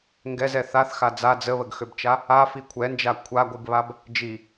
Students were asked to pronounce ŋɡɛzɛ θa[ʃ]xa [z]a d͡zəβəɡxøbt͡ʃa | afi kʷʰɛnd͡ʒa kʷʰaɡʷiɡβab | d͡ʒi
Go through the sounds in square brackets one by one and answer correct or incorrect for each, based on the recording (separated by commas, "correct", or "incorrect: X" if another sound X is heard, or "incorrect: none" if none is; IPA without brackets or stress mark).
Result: incorrect: θ, incorrect: d͡z